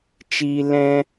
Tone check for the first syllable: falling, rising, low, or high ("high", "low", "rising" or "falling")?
high